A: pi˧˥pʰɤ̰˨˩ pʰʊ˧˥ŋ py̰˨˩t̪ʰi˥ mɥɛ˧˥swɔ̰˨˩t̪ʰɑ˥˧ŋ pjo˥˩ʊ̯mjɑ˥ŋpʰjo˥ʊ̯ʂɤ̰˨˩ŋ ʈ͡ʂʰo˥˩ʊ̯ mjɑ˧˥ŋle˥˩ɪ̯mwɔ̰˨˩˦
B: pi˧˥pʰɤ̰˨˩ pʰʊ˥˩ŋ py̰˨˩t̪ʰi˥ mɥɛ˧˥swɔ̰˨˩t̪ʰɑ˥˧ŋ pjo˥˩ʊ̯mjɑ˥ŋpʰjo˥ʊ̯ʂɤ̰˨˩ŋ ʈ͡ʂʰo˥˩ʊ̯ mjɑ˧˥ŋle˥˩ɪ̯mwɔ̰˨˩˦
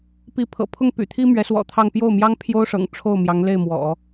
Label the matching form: B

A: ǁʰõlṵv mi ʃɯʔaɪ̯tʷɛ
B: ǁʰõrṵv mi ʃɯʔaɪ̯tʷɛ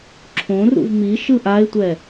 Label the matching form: B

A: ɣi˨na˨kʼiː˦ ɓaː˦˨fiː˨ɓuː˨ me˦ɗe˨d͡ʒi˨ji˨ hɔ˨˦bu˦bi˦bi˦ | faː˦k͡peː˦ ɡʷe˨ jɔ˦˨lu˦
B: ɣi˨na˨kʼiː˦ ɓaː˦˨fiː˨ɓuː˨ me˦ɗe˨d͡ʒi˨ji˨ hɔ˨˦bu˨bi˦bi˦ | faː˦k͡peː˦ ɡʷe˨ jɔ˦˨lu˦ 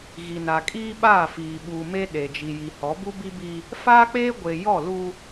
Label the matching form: A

